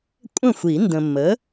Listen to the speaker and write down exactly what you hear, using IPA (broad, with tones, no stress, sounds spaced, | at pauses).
kʷʼ ə̃˥˩ xʷ i˨˩˦ n d ə̃˨ mː ə˨˥